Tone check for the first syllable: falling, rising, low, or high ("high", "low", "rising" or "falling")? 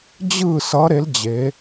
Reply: falling